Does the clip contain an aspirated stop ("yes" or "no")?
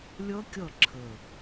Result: yes